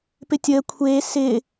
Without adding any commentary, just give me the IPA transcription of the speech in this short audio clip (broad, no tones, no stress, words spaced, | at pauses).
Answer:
pɪtʲəː kʷʰeː sɪː